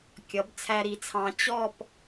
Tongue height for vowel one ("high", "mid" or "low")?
mid